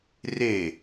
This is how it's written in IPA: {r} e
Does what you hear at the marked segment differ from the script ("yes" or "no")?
no